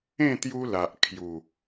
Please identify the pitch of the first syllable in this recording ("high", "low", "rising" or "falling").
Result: falling